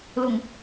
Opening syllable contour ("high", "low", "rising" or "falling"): low